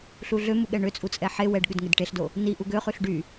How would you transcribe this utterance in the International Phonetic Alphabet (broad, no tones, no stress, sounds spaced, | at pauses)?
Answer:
ɬ u ɮ ø m u ɠ ɛ ɳ ø t͡sʼ u t͡sʼ ɛ ħ e w ɛ ɖ ɠ ʉ d ŋ e d ʈ e ɬ d o | n i ʔ u ɡ ø χ ʉ ɬ ɖ y